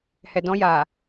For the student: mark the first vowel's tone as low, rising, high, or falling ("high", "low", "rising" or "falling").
low